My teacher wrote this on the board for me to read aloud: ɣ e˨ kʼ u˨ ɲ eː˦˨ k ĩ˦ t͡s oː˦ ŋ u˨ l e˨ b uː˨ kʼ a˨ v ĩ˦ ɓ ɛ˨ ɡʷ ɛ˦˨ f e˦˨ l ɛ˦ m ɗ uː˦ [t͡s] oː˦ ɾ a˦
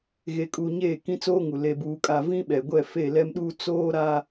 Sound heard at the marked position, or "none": t͡s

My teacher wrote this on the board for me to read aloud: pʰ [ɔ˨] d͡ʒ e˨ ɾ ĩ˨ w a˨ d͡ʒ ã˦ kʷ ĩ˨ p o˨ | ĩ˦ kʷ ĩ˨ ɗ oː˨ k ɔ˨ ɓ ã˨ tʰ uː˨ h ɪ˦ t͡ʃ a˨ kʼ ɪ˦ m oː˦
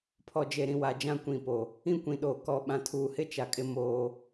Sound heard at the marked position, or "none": ɔ˨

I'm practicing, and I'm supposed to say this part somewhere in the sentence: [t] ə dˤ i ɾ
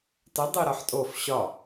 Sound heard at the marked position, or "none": t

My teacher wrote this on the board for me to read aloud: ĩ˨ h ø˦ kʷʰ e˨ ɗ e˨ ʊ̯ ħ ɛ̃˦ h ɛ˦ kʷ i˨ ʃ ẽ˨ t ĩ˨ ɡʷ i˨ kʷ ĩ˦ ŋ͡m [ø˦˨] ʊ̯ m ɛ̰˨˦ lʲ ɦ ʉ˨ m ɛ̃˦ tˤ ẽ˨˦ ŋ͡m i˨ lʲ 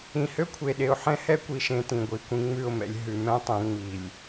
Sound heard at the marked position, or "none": ʉ˦˨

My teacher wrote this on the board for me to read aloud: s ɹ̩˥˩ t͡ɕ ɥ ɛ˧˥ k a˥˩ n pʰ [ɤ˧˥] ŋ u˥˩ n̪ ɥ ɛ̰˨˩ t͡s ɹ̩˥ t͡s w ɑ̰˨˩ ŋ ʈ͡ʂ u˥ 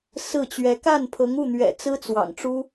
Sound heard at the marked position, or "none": ɤ˧˥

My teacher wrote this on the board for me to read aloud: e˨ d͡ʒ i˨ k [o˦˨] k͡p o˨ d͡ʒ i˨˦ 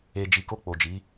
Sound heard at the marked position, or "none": o˧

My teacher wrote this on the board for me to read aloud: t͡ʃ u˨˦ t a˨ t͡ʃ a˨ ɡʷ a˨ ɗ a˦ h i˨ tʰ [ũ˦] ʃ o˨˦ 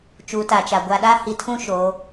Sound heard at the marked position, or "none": ũ˦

